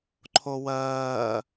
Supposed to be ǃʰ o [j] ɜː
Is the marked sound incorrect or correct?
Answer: incorrect